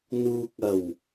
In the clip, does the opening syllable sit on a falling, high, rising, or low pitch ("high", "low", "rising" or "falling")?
low